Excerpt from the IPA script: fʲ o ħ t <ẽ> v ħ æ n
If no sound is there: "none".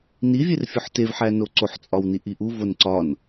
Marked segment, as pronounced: e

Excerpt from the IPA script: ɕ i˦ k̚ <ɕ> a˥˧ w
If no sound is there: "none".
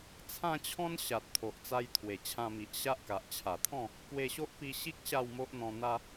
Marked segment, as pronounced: ɕ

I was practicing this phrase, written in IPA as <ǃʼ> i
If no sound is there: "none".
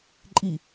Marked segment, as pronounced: ǃʼ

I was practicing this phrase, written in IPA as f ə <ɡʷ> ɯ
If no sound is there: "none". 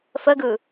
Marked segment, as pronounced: ɡ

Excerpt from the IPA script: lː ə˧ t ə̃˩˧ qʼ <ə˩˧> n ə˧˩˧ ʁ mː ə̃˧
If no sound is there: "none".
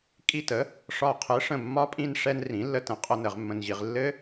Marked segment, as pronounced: ə˧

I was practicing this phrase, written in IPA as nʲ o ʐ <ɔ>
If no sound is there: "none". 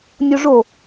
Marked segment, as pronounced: o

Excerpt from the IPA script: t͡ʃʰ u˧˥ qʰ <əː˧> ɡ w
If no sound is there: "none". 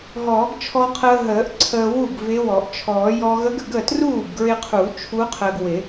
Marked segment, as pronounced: əː˧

